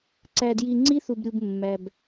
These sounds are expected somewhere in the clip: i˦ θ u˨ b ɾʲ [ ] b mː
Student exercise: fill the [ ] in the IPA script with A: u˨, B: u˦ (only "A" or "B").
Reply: A